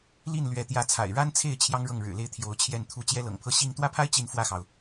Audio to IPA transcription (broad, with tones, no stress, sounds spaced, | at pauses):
l i˥˩ n l ɥ ɛ˧˥ t̪ j ä˧˥ t͡sʰ a̰˨˩ ɪ̯ ɻ a˥ n t͡sʰ e˥˩ ɪ̯ t͡ɕʰ j ɑ˥ ŋ ɻ ɤ˥˩ ŋ ɻ ɻ̩˨˩ l e˥˩ ɪ̯ t̪ʰ j o˧˥ ʊ̯ t͡ɕʰ j ɛ˥˩ n t̪ʰ u˥ t͡ɕ j ɛ˥ l ɤ̰˨˩ ŋ pʰ ɤ˥˧ ɕ i˥˧ ŋ t̪ w ä˥˩ pʰ a˥ ɪ̯ t͡ɕ i˥˧ n f w ä˥˩ x ɑ˩ ʊ̯